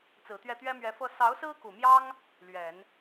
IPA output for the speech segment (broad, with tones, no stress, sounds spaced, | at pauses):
t͡s ɹ̩˨˩ t̪ ɥ ɛ˥˩ t̪ ɥ ɛ˥ m ɥ ɛ˧˥ f ɤ˥ s ɑ˧˥ ʊ̯ s ɹ̩˥ k u˨˩ m j ɑ˥ ŋ | l ɥ ɛ˨˩˦ n